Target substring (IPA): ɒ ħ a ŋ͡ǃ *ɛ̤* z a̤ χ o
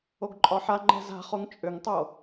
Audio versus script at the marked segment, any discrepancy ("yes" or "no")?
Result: no